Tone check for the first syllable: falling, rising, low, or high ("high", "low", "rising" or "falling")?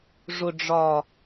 low